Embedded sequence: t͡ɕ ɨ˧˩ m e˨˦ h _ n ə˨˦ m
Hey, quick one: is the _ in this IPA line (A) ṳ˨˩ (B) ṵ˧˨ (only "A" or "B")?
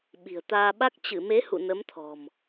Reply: B